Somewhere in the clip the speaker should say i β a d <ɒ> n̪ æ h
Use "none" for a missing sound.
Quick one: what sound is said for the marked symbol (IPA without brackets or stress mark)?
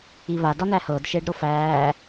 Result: ɒ